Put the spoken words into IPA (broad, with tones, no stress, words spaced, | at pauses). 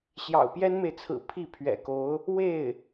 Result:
ɕjɑ̰˨˩ʊ̯pjɛ˥nme˨ɪ̯t͡sʰɹ̩˨˩ pʰi˥˩pʰɥɛ̰˨˩ko˧˥ʊ̯ | we˥˩ɪ̯